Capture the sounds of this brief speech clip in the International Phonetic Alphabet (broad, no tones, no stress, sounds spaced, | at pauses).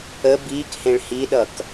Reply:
ə b iː k h ẽ ɭ h i ɗ ʌ k